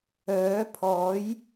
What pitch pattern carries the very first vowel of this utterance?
rising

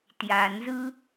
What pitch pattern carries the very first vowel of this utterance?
low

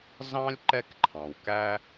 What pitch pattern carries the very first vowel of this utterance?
high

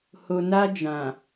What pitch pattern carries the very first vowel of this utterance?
low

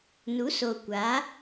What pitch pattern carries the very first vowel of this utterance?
rising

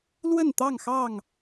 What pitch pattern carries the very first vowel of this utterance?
falling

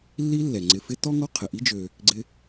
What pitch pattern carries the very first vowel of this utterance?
high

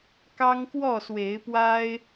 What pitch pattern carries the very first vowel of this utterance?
high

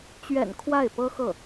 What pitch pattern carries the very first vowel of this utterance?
low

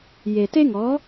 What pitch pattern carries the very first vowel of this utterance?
low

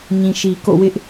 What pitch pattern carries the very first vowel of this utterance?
low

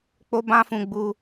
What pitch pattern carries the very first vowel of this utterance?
high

